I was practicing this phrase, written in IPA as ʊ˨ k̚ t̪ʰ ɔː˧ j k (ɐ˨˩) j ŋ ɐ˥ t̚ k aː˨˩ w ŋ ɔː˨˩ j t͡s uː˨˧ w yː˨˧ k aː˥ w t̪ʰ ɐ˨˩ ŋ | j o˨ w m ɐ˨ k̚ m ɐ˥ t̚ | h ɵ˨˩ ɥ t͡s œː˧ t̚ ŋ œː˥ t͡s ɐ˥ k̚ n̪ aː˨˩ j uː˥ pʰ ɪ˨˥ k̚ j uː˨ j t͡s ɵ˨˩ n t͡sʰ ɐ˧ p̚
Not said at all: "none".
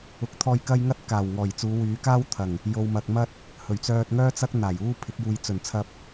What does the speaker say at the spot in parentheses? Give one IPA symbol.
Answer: ɐ˥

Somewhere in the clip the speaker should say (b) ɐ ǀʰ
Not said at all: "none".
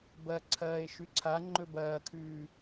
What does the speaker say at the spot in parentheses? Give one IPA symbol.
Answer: b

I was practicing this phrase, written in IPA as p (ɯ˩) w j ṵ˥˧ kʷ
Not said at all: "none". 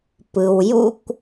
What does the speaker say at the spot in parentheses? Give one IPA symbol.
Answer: ɯ˩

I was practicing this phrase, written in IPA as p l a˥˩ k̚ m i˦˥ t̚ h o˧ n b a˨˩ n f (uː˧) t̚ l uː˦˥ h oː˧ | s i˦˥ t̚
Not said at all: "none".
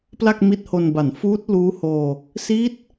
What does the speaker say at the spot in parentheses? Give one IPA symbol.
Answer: uː˦˥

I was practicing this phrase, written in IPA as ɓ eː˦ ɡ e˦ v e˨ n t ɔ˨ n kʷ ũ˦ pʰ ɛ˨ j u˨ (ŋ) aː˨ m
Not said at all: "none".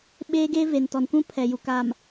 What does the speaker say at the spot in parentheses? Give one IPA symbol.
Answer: k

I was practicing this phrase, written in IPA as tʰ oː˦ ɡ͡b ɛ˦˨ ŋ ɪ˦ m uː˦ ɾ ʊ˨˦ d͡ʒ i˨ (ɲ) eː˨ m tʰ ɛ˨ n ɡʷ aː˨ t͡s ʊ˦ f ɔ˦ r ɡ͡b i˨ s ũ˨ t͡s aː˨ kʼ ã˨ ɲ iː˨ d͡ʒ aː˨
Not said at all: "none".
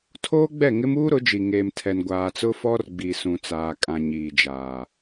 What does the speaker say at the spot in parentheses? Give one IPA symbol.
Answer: ŋ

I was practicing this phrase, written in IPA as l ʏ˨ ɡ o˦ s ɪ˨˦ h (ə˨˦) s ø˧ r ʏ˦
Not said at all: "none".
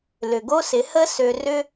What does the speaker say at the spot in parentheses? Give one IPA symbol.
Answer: ə˦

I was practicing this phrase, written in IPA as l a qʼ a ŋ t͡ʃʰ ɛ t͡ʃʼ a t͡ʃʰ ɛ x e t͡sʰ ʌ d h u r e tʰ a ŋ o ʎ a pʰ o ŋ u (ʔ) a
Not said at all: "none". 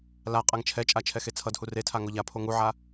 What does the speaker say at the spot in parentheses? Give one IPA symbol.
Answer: ʕ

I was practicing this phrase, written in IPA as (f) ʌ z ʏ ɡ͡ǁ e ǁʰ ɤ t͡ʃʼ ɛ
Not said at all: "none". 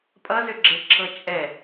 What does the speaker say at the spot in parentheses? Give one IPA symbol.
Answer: pʼ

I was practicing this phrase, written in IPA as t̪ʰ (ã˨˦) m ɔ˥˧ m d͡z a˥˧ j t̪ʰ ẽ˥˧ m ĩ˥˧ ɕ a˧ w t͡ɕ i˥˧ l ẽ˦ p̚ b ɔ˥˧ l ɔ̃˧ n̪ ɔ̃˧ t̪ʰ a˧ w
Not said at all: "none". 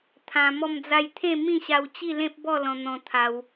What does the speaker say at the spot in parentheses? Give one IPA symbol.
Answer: ã˧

